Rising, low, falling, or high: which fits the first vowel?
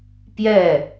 falling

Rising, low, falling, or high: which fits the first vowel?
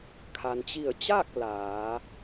low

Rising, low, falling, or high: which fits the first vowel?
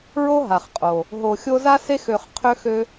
high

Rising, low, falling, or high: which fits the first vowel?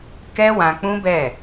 high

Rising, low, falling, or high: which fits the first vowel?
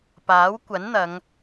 rising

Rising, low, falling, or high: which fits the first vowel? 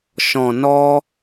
low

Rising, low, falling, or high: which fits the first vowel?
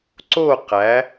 falling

